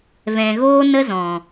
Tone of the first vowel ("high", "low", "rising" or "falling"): low